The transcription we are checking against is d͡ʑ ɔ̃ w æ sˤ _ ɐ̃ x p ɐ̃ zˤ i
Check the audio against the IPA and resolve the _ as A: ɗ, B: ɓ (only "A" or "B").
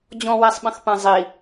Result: B